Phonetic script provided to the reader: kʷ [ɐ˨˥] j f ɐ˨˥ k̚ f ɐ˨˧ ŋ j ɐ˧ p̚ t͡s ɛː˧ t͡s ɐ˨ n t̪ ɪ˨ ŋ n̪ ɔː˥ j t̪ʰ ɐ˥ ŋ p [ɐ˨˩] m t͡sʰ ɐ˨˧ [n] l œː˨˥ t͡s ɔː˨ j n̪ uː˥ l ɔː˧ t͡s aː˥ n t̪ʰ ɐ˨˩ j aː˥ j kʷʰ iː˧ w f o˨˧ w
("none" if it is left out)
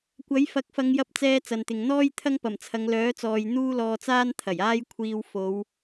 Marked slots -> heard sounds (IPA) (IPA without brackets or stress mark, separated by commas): ɐ˨˥, ɐ˨˩, ŋ